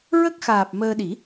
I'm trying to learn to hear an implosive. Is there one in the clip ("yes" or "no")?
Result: yes